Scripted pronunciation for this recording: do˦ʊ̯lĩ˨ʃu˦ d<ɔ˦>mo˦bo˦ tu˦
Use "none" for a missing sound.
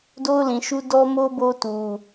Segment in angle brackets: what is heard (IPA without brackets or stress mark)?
ɔ˦